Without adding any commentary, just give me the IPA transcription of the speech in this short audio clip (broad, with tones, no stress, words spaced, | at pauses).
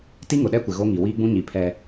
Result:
ti˦ŋʊ˨ɗɛ˦kʷɪ˨ ɣo˦ŋi˨ wiː˦ɡ͡bũ˦ɲi˨ pʰɛ˦